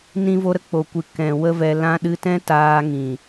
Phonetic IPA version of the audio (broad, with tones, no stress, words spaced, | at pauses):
nĩ˧vo˧ ɾə˦k͡po˨kʷɨ˨ kɛ̃˨ wə˦vɛ˧ lã˧ɗɨ˧tɛ̃˦ taː˧ŋĩ˨